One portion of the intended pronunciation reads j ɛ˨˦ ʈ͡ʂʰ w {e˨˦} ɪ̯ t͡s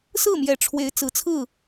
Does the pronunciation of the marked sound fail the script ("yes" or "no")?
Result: no